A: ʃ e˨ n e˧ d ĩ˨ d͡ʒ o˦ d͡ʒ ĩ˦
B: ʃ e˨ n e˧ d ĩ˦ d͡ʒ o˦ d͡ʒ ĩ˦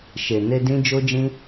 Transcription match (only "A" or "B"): B